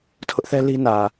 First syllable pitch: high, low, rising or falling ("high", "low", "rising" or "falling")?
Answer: high